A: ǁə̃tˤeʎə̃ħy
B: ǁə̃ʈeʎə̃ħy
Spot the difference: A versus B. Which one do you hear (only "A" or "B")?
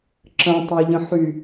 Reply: A